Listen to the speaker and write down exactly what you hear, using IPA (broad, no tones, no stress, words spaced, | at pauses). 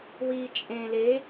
wiːt͡ʃʼẽ le